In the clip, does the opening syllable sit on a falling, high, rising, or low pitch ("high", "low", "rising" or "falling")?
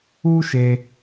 high